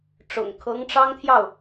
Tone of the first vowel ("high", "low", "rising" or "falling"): low